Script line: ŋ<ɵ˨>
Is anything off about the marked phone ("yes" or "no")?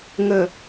yes